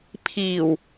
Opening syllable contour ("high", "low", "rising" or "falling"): low